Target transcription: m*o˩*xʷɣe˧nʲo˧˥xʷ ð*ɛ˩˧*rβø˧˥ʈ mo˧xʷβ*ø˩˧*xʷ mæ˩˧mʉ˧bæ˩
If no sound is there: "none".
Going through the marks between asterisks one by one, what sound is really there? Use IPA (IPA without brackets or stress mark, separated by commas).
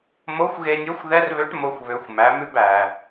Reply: o˧˥, ɛ˧˥, ø˩˧